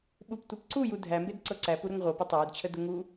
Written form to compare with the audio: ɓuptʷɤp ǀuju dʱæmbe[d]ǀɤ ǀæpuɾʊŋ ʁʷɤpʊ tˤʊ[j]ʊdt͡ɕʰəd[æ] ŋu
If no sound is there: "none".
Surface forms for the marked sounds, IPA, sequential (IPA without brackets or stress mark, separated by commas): d, j, ə